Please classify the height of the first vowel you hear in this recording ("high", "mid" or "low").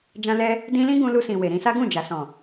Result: low